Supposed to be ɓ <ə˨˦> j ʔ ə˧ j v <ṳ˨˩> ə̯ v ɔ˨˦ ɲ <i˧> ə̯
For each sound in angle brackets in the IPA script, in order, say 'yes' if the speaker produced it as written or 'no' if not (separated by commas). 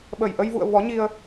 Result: no, no, yes